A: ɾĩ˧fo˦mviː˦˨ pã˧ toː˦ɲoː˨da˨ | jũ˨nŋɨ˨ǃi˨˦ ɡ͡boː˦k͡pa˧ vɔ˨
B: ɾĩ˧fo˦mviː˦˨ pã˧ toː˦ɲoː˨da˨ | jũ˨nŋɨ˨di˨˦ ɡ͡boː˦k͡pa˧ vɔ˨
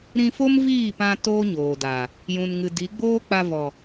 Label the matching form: B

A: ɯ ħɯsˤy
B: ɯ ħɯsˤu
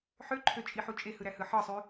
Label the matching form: A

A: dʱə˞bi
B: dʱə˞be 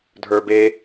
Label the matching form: B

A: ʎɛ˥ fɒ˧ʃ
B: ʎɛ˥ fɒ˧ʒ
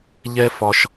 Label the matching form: A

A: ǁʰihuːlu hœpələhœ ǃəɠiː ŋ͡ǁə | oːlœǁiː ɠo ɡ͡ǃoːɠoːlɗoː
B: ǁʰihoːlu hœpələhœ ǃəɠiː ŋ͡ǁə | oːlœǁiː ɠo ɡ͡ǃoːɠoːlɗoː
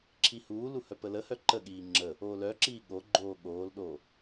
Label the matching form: A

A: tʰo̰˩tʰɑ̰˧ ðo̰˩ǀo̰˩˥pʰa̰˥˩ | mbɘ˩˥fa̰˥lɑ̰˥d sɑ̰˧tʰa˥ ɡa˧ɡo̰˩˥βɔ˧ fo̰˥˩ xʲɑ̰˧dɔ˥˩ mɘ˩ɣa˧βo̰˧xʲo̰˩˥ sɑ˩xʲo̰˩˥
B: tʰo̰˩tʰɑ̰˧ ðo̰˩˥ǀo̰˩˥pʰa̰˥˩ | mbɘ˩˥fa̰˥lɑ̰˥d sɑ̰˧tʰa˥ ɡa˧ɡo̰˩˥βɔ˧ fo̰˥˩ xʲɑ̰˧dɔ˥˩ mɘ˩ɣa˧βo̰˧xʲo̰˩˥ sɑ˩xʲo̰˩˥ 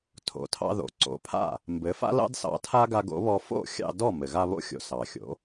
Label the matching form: A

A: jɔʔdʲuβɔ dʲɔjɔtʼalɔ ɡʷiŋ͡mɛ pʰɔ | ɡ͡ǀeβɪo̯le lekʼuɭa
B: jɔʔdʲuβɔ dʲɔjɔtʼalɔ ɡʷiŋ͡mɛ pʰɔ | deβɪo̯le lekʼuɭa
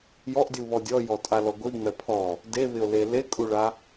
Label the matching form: B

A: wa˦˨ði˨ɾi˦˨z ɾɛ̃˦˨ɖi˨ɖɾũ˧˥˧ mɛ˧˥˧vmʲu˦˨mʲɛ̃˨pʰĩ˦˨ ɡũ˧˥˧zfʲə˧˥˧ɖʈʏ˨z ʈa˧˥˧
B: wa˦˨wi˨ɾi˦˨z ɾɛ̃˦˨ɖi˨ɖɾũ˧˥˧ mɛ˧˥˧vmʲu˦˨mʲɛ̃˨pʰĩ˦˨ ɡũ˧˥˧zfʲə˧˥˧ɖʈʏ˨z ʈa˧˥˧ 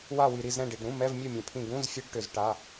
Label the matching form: B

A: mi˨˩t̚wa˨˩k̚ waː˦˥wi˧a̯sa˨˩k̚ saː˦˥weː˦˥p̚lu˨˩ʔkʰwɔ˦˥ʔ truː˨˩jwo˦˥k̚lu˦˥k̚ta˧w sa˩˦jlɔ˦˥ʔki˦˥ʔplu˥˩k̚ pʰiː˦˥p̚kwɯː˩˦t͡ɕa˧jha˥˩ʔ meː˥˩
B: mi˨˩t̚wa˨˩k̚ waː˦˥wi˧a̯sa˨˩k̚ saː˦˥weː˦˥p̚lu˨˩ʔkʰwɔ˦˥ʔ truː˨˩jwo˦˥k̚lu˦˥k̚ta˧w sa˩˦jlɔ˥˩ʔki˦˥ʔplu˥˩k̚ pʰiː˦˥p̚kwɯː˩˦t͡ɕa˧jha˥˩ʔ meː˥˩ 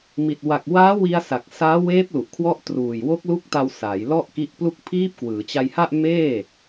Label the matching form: B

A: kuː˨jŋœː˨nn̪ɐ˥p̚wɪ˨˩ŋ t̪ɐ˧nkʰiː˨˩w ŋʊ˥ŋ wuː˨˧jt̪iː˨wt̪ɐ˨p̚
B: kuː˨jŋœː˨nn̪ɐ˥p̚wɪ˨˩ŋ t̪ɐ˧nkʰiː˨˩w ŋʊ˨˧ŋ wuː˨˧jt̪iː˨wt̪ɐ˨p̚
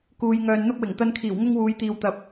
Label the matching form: A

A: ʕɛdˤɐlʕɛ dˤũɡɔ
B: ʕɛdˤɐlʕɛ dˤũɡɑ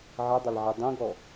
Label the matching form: A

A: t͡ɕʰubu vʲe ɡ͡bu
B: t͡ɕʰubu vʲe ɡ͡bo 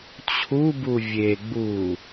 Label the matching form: A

